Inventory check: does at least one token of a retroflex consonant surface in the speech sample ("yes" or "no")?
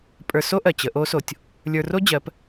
no